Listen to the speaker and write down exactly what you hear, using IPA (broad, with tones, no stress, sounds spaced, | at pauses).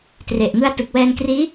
t r e˨˩ ʔ ŋ ɯ˧ a̯ t ɯ˨˩ k̚ w ɛː˧ n k r iː˦˥